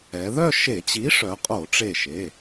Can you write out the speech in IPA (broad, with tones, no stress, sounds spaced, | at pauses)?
ɛ˩˧ ð œ˥˧ ʃ e˧˩˧ t͡ɕ i˨˥ ʂ œ˩˧ qʼ o˧˩˧ ʈ͡ʂ e˧˩ ʃ e˩˧˩